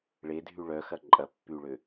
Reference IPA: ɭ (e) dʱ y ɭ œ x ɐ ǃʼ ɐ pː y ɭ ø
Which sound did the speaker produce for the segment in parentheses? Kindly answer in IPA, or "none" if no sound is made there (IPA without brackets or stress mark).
e